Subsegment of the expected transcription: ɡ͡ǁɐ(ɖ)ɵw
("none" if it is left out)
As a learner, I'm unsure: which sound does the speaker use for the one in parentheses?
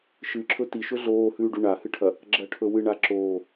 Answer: ʈʰ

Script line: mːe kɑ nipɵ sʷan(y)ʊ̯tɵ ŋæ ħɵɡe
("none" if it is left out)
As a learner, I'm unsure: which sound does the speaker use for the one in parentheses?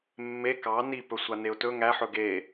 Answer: e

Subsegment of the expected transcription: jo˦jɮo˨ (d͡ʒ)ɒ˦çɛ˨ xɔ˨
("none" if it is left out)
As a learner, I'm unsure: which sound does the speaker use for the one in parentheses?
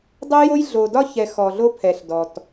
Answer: d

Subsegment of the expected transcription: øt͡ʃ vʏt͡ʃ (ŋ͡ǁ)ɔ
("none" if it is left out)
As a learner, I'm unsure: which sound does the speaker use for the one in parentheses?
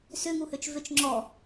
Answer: ŋ͡ǁ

